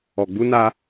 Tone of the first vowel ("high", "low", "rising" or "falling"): low